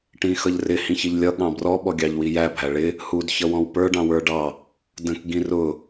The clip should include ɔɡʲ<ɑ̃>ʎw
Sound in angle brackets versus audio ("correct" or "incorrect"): incorrect